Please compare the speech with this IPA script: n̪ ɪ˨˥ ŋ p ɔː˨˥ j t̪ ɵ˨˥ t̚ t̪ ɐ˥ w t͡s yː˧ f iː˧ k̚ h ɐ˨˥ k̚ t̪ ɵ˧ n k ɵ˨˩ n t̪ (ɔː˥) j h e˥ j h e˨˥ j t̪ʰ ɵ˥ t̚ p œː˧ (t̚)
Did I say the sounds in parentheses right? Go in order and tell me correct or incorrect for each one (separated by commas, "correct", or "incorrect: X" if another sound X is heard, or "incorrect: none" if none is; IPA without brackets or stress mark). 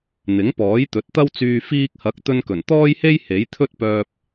correct, incorrect: p̚